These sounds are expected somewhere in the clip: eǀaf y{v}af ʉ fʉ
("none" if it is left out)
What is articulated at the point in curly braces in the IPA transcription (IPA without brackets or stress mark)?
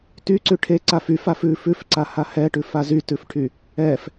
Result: f